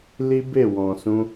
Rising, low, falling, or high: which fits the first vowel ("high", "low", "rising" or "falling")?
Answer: high